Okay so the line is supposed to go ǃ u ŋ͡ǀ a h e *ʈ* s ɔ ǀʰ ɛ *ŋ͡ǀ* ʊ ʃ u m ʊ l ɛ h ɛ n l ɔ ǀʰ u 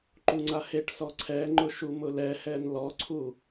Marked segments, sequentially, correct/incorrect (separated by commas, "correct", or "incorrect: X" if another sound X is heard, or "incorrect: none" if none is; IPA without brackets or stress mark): correct, incorrect: ŋ͡ǃ